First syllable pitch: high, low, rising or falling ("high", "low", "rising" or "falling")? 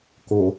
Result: low